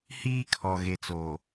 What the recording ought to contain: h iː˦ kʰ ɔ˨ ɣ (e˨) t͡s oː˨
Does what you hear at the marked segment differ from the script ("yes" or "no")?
no